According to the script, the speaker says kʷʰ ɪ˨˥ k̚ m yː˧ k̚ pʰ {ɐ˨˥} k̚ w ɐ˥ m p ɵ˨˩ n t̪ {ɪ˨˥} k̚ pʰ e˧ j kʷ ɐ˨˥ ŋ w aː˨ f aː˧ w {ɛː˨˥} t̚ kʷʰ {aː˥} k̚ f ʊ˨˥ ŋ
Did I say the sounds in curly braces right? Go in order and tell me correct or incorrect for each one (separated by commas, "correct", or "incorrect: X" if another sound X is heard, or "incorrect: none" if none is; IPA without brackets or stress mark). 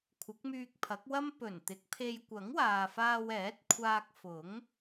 correct, correct, correct, incorrect: aː˧